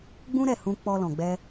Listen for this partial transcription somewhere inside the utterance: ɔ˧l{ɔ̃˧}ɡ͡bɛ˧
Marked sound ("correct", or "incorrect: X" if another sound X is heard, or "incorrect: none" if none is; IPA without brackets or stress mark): incorrect: ɔ̃˨